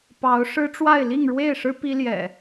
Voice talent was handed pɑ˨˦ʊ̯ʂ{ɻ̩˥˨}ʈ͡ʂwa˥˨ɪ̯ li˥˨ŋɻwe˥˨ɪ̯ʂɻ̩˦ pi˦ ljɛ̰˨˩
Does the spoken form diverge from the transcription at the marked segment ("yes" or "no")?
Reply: yes